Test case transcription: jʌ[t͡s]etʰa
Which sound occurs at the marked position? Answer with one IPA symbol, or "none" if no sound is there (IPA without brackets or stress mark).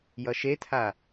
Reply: ʃ